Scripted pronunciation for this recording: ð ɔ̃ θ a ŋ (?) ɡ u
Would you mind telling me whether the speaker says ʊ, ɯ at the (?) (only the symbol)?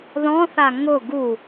ʊ